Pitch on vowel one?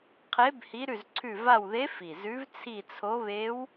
rising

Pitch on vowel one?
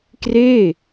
falling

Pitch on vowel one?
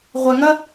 low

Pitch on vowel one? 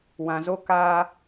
low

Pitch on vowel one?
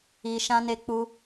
low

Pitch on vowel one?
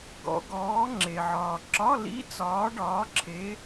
rising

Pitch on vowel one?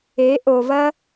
rising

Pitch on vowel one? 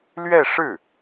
falling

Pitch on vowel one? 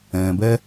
low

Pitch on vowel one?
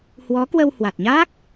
rising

